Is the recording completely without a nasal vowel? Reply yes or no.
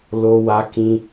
no